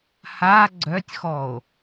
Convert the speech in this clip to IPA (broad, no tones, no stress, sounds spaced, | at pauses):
h a ɡ͡ǀ œ tʲ x ɔ o̯